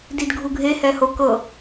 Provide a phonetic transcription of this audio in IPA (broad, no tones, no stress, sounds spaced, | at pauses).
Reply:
d i d ɡʱ u ɡʱ e h ɛ h o k ɤ